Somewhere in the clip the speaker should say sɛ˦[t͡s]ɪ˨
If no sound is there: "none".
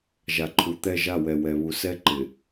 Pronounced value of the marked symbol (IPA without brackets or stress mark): ǃ